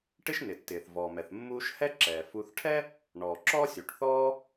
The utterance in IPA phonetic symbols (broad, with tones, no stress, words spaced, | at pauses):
ʈɪ˦ʃnɪ˩tːɪː˩θ vɔː˩mɛ˩θ mːuː˦ʃ hɛ˥ǁɛː˩ fu˨θʈʰɛ˥ | ɳɔ˩ ǁɔ˥sʲu˩ʈθɔː˥